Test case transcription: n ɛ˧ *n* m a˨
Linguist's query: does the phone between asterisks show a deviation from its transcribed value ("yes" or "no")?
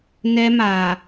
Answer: yes